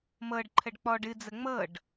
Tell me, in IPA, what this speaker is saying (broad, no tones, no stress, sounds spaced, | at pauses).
m ɤ ɖ ǃʰ ə ɖ k͡p ɔ ɖ ɨ d͡z ə ŋ͡m ɤ ɖ